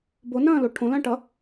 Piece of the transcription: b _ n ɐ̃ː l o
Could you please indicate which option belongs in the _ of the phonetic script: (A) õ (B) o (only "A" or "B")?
B